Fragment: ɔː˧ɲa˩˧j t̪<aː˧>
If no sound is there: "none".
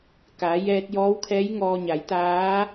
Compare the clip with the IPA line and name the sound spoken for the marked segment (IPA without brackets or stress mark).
aː˧˥